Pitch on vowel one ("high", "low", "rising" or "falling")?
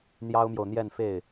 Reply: high